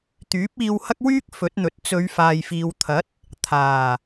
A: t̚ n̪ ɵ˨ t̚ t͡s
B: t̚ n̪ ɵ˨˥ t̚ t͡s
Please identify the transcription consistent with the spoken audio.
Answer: A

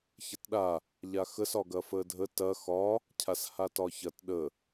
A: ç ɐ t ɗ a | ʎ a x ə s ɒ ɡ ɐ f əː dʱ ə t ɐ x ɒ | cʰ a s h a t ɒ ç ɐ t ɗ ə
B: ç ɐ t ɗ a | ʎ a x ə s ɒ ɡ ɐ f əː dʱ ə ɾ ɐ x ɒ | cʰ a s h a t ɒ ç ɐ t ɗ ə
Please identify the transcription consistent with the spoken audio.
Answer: A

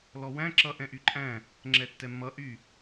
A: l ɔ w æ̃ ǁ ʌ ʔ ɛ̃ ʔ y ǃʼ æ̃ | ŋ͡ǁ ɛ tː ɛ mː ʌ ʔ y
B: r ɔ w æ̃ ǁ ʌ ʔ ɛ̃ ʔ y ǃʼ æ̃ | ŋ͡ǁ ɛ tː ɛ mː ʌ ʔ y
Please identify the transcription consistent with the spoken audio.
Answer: A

